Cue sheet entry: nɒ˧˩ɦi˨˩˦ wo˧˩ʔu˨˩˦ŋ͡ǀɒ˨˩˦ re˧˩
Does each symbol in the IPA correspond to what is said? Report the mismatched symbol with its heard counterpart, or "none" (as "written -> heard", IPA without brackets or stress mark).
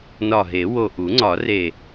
i˨˩˦ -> e˨˩˦